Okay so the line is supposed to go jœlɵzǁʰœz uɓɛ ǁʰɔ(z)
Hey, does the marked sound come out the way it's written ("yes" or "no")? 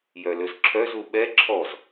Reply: yes